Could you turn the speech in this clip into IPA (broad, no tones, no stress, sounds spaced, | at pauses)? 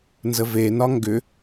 n z ə v e n ɒ ŋ ɡ ʏ